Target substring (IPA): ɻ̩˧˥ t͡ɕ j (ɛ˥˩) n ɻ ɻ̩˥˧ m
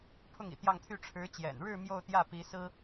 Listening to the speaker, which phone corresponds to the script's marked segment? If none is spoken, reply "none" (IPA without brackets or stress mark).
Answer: ɛ̰˨˩